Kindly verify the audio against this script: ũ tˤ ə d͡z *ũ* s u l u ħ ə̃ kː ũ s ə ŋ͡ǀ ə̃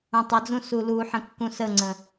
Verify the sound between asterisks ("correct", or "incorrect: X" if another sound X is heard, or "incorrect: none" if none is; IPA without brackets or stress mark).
correct